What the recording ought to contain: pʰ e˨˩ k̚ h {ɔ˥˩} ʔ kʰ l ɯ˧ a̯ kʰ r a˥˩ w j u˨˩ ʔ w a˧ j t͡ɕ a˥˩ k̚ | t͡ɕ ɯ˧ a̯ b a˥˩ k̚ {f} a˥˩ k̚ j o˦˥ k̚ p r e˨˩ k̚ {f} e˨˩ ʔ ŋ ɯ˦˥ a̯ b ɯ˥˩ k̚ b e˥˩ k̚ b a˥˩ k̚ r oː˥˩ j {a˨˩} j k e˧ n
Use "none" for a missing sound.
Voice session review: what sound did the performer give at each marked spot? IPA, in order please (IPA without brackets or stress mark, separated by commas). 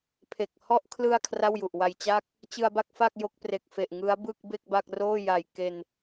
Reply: ɔ˥˩, f, f, a˨˩